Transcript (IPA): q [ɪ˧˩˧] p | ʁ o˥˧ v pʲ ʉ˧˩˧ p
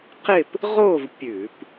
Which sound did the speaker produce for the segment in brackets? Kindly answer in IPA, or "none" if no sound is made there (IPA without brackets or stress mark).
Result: ɪ˥˧